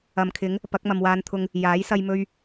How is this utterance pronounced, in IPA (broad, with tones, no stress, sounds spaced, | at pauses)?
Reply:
ɐ˨ m kʰ ɪ˨˥ ŋ | p ɐ˨˥ k̚ m ɐ˨ m w aː˧ n t̪ʰ ʊ˧ ŋ | j aː˨˥ j s ɐ˧ j m ɵ˧ ɥ